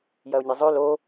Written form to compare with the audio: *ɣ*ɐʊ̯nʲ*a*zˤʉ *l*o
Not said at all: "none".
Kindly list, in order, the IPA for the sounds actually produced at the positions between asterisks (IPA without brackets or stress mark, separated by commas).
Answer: j, ɐ, l